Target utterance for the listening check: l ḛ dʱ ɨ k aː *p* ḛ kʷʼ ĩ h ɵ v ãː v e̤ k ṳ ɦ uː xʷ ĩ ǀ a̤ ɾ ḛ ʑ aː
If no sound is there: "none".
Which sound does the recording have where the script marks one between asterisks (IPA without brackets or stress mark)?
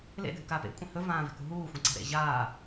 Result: p